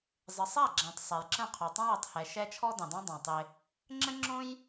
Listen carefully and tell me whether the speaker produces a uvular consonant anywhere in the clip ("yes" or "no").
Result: yes